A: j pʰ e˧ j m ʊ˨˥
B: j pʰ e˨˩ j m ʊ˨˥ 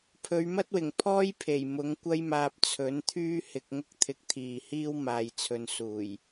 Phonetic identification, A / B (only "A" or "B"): B